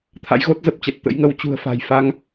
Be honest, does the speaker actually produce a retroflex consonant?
no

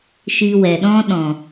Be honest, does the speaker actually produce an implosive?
yes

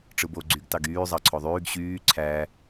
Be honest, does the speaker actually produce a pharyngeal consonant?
no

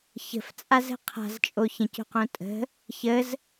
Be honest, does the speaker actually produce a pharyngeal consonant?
no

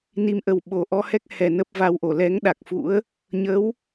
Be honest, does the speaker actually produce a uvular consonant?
no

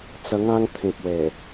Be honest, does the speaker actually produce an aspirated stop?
yes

